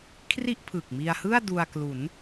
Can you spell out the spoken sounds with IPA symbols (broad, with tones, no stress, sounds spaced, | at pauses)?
kʰ r i˥˩ ʔ pʰ ɯ˨˩ k̚ m i˧ a̯ h ɯ˥˩ a̯ d u˧ a̯ k l u˩˦ n